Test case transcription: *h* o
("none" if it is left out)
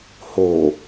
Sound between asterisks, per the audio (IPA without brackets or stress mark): h